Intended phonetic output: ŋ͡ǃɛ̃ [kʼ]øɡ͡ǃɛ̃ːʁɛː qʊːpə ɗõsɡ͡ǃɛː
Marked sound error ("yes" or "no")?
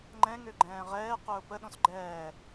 yes